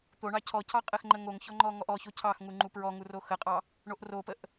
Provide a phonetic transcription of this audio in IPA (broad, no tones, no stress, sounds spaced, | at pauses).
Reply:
t̪ o ɳ ɑ cʰ ɔ cʰ ɑ qʼ ə x ŋ͡ǃ ə ŋ o ŋ ç ɔ ŋ͡ǃ ɔ ŋ ɔ ʔ ɔ ç o cʰ ɑ x ŋ u ŋ͡ǃ u p ɹ ɔ ŋ u r o x ə qʼ ɑ | ɳ o ʔ r o p ə ʔ